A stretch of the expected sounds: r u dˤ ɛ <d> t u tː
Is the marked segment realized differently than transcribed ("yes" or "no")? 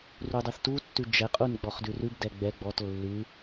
yes